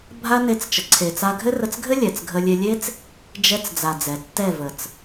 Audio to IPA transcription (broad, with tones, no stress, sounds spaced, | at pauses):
bʱ a˦ n e˧ t͡s t͡ʃ ə˨ ǀʰ e˨ t͡s a˧ ɡʱ ɘ˦ r ə˧ t͡s ɡʱ ɘ˦ lʲ ɛ˨ t͡s ɡʱ ə˧ lʲ e˧ lʲ e˦ t͡s | d͡ʒ ɛ˧ t͡s d͡z a˨ d͡z ɛ˨ tː ɛ˦˨ v ə˨ t͡s